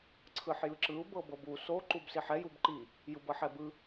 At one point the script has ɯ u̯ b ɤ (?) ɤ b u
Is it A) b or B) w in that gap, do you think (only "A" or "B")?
A